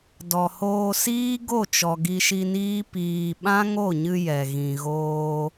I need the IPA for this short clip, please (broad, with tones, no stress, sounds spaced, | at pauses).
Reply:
d ɔ˨ h oː˧ s iː˦ ɡ o˦˨ t͡ʃ ɔ˨ ɡ i˧ ʃ i˧ n iː˦ p iː˨ ɓ ã˦ ŋ o˦˨ ɲ ɨ˧ j ɛ˨ ɣ ĩ˨ ɣ oː˧